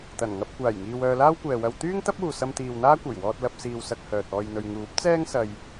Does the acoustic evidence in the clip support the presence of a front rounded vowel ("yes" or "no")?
yes